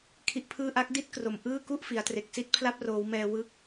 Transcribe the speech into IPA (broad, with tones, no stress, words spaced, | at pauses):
kʰi˦˥ʔpʰɯː˥˩ ʔa˦˥k̚di˥˩t̚ kro˨˩mʔɯː˥˩ku˥˩ʔ fi˩˦a̯tre˨˩k̚si˥˩t̚ pʰla˦˥p̚roː˩˦wmɛː˧ wɯ˦˥k̚